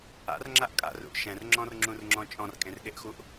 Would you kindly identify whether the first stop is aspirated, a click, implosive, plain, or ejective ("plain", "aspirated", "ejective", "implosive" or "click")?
click